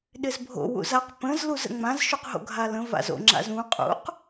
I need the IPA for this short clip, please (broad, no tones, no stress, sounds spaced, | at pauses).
ɗ ɪ z bʱ o̰ w ṵ z a q p ə̃ z l u z ə̰ ŋ͡m ã z ʃ u q ɦ o̰ ɡʱ a l ə̃ v a̰ z o̰ ŋ͡ǁ a̰ z ũ qʼ ṵ q